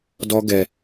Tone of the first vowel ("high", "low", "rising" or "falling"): high